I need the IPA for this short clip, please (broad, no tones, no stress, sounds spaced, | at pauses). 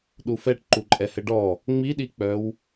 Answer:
ɗ u f ɛ ʈ ǃ u ǃʼ ɛ h ɘ ɖ ɔ | ŋ͡m i ɗ i k͡p œ w